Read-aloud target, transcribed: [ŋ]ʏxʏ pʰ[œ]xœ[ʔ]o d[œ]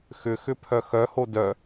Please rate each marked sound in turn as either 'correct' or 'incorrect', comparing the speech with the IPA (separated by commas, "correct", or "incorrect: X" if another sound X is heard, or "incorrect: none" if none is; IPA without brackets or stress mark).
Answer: incorrect: x, correct, incorrect: h, correct